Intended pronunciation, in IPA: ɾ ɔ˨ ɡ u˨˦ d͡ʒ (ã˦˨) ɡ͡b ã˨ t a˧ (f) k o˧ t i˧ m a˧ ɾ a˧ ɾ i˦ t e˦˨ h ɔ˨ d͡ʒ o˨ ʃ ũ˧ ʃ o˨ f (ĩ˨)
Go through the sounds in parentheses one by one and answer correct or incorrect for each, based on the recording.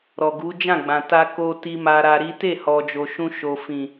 correct, incorrect: none, correct

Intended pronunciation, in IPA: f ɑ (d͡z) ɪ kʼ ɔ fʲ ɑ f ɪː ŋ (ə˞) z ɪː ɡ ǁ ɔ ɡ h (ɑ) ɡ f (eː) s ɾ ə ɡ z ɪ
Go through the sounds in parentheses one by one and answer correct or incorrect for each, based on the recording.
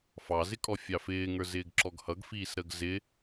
incorrect: z, correct, incorrect: ʌ, incorrect: iː

